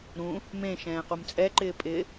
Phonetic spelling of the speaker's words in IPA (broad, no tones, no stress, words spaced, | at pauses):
ɾũ | mẽ ʃɛ̃ːqumt͡sʼɛǃɪː pʼɪ